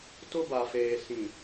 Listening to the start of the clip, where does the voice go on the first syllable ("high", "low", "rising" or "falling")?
high